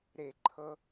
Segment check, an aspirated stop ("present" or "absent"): present